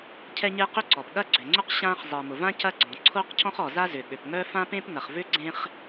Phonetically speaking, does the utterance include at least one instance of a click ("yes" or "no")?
yes